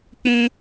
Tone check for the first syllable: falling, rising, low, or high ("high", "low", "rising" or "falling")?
high